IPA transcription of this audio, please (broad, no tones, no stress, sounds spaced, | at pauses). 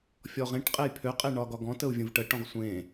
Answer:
fʲ ɔ ʁ ẽ ʈ qʼ e j pʰ ø qʼ e ɳ ɒ ɡ ɒ ɡ ɔ̃ t ə u̯ vʲ ə̃ v ʈ ə ʈ ɔ̃ ʁ sʷ ẽ